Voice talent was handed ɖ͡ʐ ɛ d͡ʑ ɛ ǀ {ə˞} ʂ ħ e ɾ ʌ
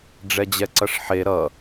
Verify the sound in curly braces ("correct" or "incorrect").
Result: incorrect